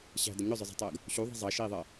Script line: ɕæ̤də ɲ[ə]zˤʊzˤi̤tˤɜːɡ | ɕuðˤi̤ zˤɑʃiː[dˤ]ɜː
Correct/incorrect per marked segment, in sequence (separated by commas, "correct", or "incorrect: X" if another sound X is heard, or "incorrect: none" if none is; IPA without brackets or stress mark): incorrect: ʊ, incorrect: ðˤ